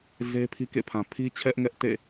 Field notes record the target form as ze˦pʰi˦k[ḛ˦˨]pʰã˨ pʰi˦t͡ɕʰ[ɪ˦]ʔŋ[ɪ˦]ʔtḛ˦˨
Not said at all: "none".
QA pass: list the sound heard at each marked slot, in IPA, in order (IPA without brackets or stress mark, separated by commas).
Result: ḛ˦˨, ɛ˦, ɛ˦